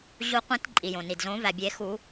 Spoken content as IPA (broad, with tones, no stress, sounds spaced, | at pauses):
ʑ u˨˩˦ qʷ ĩ˨˩˦ t ǃʼ i˩ j õ˩ n i˩ d z õ˨˩˦ v æ˩ bʲ e˨˩˦ x u˨˩˦